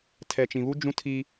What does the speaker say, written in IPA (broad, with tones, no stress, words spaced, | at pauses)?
tʰɛ˨t͡ʃĩ˨βu˦ d͡ʒũ˦tʰi˦